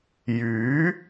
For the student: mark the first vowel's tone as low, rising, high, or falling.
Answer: rising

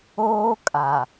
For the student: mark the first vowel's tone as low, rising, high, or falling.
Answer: high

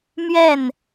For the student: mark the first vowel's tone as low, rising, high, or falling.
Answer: falling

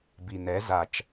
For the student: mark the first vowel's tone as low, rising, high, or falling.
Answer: low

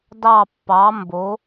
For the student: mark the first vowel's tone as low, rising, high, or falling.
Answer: falling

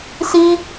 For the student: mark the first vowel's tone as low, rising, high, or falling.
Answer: high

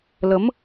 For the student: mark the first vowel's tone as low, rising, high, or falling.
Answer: rising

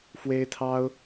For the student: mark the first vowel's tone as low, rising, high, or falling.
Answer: high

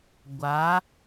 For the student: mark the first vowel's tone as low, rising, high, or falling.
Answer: rising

